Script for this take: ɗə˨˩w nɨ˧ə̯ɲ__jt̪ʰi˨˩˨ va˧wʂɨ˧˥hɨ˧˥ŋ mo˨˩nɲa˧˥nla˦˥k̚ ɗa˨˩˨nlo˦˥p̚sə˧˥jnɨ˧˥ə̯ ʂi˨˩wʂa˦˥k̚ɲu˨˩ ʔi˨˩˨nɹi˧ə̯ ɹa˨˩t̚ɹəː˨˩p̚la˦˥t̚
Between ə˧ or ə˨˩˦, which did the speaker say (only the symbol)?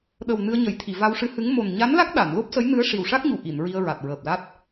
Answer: ə˨˩˦